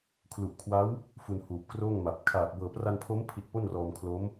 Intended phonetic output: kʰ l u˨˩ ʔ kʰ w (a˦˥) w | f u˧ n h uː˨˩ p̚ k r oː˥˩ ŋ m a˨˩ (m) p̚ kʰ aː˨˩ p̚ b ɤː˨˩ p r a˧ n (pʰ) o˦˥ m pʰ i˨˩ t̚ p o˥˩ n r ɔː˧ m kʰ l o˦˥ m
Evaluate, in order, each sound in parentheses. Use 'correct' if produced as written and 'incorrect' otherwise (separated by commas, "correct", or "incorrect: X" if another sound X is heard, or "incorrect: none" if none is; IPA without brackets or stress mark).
correct, incorrect: none, correct